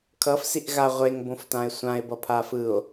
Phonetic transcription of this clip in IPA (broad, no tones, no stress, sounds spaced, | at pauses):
kʰ ʌ f s i ʔ ɣ a ʁʷ e ŋ b õ f t ã e̯ sʷ ã e̯ b ʌ pʰ a f ɯ o̯